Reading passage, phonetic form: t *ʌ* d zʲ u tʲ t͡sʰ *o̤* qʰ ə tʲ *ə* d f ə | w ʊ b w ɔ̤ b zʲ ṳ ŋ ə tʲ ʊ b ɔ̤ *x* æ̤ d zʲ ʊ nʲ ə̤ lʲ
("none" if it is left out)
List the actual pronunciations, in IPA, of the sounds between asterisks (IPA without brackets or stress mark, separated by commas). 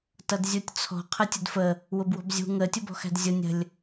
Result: ʌ, ɔ̤, ə, x